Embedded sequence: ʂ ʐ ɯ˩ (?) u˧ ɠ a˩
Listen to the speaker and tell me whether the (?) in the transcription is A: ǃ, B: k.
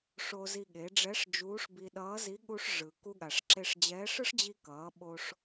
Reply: B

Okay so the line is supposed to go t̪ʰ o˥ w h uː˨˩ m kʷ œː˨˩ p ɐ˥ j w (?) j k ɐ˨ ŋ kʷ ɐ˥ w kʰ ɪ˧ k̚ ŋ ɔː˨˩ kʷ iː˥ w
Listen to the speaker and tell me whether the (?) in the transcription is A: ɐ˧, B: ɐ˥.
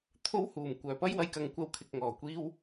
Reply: A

